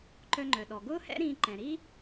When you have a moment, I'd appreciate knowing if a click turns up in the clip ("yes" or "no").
yes